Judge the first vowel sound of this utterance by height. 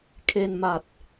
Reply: mid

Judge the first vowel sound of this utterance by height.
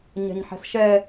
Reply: mid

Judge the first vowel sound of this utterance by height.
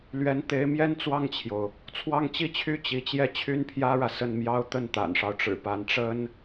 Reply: mid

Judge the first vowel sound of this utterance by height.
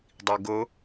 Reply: high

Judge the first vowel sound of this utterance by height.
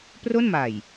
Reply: mid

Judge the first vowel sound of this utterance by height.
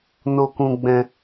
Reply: mid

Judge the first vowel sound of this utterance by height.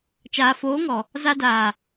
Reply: low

